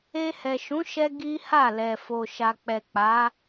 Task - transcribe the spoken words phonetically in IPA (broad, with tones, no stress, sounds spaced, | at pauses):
e˧ h ɛ˨ ʃ ũ˨˦ ʃ ɛ˧ ɡ i˦ h a˦˨ l ɛ˨ f o˨ ʃ a˨ k͡p ɛ˨ k͡p a˨˦